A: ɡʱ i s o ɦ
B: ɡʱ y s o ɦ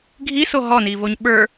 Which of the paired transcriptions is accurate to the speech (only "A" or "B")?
A